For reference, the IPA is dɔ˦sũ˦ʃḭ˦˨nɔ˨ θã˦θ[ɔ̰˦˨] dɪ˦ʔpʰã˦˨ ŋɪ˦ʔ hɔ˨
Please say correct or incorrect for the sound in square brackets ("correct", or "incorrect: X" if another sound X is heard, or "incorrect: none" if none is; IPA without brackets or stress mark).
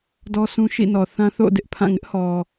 incorrect: o̰˦˨